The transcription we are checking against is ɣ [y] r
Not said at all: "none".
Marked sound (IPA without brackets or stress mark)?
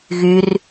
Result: y